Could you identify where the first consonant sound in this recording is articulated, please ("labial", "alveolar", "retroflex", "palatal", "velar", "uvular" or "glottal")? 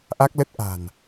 glottal